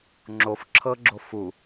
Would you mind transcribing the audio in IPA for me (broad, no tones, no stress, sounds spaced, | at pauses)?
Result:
ŋ͡ǁ o f ǁʰ ɤ ɡ͡ǁ o f u